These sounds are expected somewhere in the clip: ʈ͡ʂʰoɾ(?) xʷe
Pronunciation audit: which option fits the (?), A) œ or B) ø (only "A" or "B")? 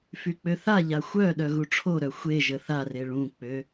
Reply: A